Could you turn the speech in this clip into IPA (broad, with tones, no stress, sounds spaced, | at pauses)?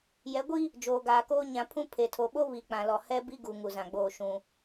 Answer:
j ɛ˨˦ ɡʷ i˦ | d͡ʒ oː˨ ɡ aː˨ k oː˦ ɲ ã˨˦ pʰ ũ˦ pʰ e˨ tʰ o˨ ɓ o˦ β i˨ k͡p ã˨ l ɔ˨ h ɛ˦ b i˦ ɡ u˨ ŋ u˨ z ã˨ ɡ͡b oː˦˨ ʃ ũ˨